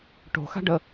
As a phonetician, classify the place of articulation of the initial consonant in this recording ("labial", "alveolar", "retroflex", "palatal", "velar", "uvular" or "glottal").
retroflex